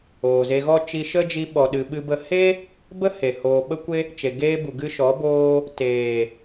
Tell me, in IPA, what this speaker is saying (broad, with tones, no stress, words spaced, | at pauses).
oː˨ze˧ɣɔ˦ t͡ʃi˧ʃə˦d͡ʒi˧ ɓɔ˨ɗɨ˨ ɓɨ˧bə˧ he˦ | bə˦he˨ hoː˨ɓə˧kʷe˧ | t͡ʃe˨ ɡeː˧bu˨ ɡɨ˧ʃɔ˨˦ boː˧ | teː˨